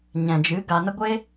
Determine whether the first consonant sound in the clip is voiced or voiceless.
voiced